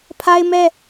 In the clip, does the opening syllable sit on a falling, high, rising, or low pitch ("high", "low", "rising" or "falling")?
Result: high